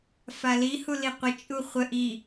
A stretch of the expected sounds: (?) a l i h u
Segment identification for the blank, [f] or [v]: f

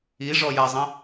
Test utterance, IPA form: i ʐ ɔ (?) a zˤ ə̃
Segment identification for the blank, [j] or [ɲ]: j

